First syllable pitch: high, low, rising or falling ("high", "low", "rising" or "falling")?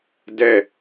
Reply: falling